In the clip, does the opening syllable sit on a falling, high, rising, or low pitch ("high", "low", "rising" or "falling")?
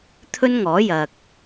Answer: high